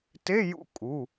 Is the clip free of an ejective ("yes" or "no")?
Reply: no